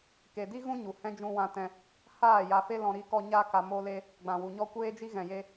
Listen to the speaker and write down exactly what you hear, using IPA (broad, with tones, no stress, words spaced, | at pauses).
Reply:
ke˨di˦ɣũ˦ ɲu˨hɛ̃˦ d͡ʒũ˧wã˧tɛ̃˧ | haː˦˨ ja˧fe˦lɔ̃˧ ɾi˧kɔ˧ ɲa˦ka˧ mo˦le˦ | ɡ͡bã˨wu˨ɲɔ˦ kʷeː˦d͡ʒi˦ ɣɛ̃˨je˧